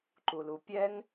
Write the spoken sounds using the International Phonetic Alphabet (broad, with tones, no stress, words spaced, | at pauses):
ǃu˨lu˨ pʲɛ˦ŋ